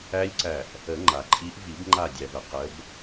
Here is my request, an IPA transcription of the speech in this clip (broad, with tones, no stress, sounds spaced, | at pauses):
æ˦˥ lʲ ǀ æ˧˩ ʔ | ə˨˩˦ ŋ͡ǃ a˩ ǃʼ i˨˦ ʔ v i˨˩˦ b ŋ͡ǃ a˧˩ dʲ æ˩ v ə˩ q ə˨˦ b